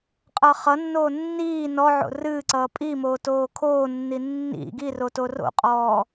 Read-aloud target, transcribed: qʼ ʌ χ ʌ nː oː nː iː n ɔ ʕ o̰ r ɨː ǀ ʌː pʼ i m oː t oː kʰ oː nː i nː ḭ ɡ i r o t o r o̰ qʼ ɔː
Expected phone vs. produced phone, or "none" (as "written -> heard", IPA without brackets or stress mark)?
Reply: none